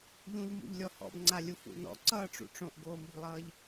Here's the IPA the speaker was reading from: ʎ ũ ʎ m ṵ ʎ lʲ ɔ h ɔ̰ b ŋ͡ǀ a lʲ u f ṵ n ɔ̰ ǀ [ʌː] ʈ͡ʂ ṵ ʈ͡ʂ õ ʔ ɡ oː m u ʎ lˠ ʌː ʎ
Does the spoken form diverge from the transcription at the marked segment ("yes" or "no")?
no